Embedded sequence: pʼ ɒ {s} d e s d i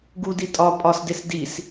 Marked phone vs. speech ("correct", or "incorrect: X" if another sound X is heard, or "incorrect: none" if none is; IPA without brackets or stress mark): correct